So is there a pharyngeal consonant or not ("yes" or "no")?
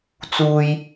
no